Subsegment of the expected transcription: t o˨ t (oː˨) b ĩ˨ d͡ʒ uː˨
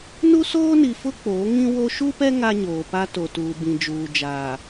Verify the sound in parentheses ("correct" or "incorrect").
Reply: incorrect